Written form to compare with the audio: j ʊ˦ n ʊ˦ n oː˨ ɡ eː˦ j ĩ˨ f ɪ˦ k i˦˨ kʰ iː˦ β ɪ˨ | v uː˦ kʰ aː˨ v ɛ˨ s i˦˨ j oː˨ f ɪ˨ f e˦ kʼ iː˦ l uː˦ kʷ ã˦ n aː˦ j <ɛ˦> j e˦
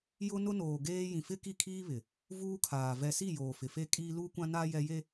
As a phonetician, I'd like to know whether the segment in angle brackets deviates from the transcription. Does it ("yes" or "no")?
no